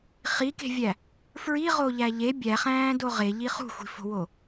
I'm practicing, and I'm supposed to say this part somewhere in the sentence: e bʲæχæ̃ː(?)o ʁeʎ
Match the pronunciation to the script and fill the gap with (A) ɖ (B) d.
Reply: B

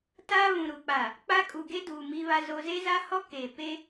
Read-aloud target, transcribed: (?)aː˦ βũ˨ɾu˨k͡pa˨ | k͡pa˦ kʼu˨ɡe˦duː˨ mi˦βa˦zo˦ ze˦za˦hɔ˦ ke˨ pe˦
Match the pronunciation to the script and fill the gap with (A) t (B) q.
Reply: A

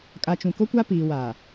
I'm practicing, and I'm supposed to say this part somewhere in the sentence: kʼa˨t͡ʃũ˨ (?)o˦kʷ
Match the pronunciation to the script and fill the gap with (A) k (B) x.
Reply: A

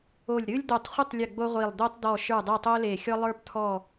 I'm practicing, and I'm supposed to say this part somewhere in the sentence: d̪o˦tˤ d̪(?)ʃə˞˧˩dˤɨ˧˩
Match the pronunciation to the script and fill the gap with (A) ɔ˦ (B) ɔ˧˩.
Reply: B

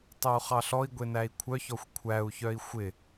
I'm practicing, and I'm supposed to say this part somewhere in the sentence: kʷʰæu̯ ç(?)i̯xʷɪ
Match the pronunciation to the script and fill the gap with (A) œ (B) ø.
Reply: A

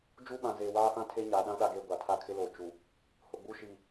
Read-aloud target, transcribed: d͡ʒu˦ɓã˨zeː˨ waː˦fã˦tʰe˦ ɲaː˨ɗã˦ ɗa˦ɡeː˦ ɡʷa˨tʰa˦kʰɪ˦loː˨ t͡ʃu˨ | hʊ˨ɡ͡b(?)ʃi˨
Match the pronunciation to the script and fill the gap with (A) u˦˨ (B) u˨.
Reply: A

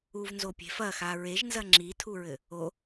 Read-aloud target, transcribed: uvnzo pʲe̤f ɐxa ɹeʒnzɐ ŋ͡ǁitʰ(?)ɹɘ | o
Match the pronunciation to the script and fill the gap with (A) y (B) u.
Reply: B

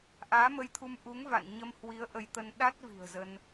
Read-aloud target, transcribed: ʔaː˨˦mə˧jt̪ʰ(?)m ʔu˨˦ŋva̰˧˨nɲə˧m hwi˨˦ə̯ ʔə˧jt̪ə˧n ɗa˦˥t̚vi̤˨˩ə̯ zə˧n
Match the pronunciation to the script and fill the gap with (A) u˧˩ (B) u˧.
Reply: B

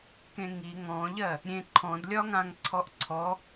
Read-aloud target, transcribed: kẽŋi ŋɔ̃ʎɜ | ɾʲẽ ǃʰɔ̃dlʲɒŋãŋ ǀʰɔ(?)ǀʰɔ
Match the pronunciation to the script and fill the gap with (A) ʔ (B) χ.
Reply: A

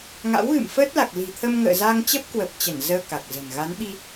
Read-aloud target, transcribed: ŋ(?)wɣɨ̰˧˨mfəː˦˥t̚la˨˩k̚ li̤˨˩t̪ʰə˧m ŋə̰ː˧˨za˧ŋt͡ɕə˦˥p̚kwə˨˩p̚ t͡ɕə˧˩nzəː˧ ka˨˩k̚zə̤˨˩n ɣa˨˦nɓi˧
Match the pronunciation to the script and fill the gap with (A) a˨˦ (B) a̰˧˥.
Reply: B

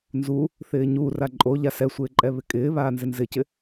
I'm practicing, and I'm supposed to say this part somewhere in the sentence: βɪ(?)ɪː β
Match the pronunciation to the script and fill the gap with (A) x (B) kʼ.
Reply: B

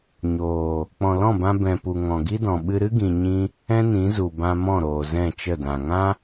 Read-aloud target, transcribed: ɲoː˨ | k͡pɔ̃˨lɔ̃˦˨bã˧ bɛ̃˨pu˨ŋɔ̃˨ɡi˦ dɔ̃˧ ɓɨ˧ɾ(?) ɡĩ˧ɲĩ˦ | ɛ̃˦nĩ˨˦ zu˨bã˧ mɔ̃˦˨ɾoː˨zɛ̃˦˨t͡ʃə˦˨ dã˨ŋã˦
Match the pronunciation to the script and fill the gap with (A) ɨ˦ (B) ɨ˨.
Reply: A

